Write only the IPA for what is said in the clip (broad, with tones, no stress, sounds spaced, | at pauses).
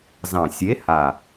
z ɑ̃˨˩ sʲ e˨˥ h a˨˩